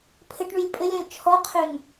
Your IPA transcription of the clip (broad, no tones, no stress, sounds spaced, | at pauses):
pʰ ɘ ʈ ɳ y lʲ pʼ ɘ lʲ ɔ̃ lʲ t͡ʃʰ ɔ qʰ ø ŋ